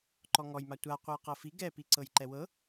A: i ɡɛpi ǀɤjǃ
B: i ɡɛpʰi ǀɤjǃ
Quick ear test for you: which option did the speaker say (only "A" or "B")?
A